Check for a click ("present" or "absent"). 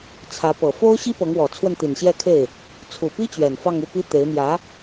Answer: absent